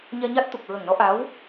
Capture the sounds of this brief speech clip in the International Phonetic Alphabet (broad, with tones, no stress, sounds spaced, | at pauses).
ɲ ɛ˧ ɲ a˦˥ t̚ t̪ u˨˩ k̚ ɹ ə˨˩ ŋ n ɔ˧˥ ʔ a˧˥ w